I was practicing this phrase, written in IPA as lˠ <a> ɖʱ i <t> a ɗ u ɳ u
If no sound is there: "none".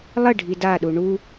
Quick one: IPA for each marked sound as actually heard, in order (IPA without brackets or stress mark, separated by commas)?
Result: ə, d